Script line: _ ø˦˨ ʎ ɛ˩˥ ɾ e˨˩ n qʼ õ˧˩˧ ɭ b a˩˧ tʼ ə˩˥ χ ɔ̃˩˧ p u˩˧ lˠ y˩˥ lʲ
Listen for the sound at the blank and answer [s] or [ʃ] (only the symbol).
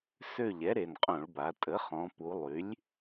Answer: s